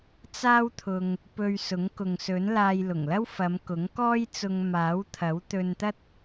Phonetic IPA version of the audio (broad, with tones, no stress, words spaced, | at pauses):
t͡saː˥wt̪ʰʊ˧ŋ | pɵ˧ɥsʊ˨˥ŋkʊ˨ŋsɵ˨˥n laː˧jlʊ˨˩ŋlɐ˥wfɐ˨˧m kʊ˨˥ŋkɔː˥jt͡sʊ˧ŋ maː˨˥wt̪ʰɐ˨˥wt̪ɵ˧nt̪ɐ˥t̚